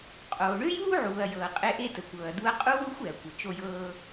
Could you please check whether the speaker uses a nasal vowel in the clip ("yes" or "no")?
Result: no